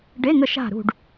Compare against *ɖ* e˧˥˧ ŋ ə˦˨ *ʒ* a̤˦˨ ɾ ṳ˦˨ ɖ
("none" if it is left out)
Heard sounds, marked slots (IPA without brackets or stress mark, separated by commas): ɖ, ʃ